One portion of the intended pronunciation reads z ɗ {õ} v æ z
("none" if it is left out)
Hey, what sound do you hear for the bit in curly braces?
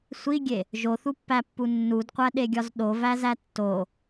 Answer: o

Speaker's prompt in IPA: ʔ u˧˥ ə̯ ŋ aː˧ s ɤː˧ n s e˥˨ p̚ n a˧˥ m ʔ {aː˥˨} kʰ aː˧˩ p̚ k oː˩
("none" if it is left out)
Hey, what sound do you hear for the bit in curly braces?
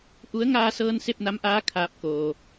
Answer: aː˧˥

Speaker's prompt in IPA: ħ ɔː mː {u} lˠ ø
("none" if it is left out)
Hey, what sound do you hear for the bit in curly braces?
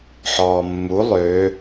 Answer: u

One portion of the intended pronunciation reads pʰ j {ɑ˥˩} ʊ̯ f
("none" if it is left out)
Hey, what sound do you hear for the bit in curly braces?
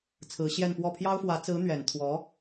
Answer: ɑ˥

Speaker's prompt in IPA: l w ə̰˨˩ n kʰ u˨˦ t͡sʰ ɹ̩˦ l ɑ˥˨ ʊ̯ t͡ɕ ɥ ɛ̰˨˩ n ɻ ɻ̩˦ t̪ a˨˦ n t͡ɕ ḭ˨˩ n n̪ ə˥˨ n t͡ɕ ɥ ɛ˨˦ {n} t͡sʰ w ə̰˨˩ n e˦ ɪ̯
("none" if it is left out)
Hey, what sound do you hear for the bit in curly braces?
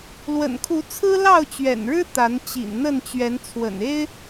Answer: n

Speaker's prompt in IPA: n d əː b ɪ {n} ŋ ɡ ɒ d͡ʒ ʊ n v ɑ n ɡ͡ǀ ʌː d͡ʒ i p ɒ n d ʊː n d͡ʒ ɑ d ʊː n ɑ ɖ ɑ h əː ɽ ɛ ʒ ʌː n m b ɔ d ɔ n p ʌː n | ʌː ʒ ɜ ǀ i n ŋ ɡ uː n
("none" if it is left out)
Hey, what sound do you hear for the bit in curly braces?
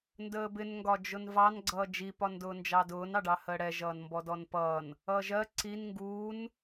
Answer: n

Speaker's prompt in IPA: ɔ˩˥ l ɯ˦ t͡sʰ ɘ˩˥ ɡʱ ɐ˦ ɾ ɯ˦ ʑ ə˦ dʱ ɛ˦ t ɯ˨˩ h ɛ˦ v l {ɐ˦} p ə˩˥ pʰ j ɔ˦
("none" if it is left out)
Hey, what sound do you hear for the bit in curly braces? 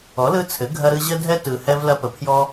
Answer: ɐ˦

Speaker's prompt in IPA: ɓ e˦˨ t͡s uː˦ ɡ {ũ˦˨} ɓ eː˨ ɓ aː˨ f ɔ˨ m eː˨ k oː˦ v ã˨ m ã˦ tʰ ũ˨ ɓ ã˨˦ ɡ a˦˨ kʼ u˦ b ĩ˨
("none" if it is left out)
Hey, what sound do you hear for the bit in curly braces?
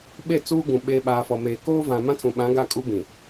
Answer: ũ˨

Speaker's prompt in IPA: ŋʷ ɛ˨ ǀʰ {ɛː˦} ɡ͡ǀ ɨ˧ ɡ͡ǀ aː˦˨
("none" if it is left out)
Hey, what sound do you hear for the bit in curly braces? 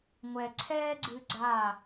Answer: ɛː˦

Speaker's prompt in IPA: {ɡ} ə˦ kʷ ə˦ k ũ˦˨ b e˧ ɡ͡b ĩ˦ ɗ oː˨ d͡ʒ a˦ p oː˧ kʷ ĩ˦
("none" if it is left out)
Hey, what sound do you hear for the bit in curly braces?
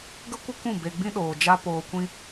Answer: ɡ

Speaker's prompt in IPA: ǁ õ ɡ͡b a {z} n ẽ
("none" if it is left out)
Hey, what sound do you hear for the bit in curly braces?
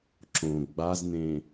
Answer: z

